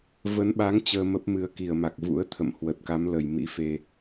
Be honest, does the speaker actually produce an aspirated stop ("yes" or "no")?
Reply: yes